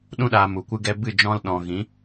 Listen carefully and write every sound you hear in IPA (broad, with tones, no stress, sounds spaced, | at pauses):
ɗ ũ˧ ɗ aː˨ m u˨ kʷ ɨ˦ ɡ ɛ˧ b ɨ˦˨ d͡ʒ ɔ̃˧ l ɗ ɔ̃˨ ɣ ĩ˨˦